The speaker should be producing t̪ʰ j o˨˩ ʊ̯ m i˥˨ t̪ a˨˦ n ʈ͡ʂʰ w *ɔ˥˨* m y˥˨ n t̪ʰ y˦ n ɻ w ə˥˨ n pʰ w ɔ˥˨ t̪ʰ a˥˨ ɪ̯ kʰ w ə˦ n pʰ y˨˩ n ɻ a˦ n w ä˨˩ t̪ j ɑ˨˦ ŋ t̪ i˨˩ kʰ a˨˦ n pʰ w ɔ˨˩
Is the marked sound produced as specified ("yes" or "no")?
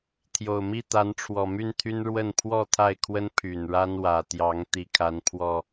no